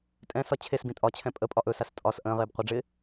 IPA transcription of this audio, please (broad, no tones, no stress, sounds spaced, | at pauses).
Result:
tʼ ɛ̃ s ɒ t͡ɕʰ e s b ĩ tʼ ɒ t͡ɕʰ ɛ̃ pʼ ə pʼ ɒ ʔ ɵ s a s tʼ ɒ s ʔ ə̃ː ʁ ɪː b qʷ ə ɖ͡ʐ ɪ